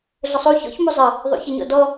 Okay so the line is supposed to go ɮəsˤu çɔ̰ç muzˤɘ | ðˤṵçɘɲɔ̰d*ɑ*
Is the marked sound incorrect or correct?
incorrect